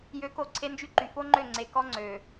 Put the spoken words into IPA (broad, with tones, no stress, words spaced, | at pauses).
jø˨˦ko˨ ǀʰe˦nd͡ʒy˦ǃy˨ fo˦ŋ͡ǃø˦˨ ŋ͡ǀe˨kɔ˦ ŋ͡ǀø˨